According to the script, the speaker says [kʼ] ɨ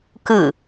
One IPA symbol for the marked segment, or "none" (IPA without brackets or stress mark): k